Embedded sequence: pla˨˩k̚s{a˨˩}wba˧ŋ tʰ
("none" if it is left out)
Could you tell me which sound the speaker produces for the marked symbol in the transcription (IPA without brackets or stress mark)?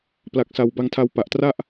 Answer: a˨˩